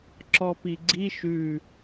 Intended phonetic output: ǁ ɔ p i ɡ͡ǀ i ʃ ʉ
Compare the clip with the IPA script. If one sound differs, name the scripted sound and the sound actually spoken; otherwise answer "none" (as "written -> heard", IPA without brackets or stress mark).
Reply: none